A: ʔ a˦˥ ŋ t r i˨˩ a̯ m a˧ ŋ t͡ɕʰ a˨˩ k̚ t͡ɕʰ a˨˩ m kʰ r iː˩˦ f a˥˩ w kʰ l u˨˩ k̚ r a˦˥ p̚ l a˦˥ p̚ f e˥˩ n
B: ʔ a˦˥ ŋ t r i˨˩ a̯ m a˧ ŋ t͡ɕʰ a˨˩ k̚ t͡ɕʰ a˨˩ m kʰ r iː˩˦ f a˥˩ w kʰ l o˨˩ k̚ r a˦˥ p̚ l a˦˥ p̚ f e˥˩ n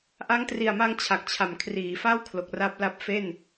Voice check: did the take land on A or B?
B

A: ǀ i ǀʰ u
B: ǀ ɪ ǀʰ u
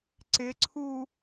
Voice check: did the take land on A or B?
B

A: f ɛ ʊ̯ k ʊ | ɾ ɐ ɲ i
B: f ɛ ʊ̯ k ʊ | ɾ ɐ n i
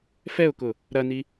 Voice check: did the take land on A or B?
B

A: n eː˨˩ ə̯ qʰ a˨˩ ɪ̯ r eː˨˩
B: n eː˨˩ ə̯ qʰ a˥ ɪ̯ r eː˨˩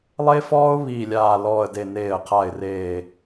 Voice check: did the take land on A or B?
A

